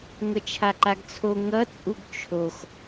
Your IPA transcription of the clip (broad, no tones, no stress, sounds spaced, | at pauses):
ŋʷ ʌ t͡ʃʰ a ǃ a ɡ t͡sʰ o ŋ ʌ t͡sʼ u ɡ t͡ʃʰ o x